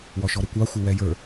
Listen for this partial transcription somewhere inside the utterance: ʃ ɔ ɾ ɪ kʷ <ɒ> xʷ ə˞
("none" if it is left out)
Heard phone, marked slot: ɑ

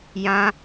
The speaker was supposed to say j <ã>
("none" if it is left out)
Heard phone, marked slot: ã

